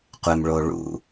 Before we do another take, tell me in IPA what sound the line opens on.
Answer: qʷ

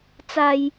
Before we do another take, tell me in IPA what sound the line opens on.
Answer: t͡s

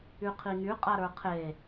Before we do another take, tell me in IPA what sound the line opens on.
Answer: y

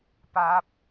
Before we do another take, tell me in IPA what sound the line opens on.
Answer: p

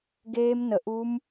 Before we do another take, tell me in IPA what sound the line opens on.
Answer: ɡ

